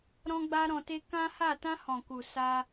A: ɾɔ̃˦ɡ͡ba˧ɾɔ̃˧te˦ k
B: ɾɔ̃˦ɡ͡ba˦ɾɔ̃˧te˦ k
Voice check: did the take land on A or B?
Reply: B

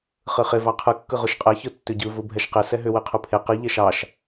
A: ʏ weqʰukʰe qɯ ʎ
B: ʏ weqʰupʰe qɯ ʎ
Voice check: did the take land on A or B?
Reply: B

